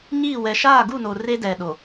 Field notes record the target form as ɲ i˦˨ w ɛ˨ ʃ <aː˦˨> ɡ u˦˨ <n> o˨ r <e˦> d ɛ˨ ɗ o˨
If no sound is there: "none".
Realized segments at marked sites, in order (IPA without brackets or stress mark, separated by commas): aː˦˨, n, e˦